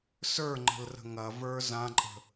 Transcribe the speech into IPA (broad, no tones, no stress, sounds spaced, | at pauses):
s ə˞ ŋ͡ǃ ə̤ l r ə̤ ŋ ɐ v ə˞ z ã ǃʼ ə̤